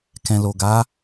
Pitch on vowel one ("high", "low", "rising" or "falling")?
low